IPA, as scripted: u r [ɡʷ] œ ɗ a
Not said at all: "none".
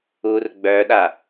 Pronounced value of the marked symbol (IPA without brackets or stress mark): ɡ͡b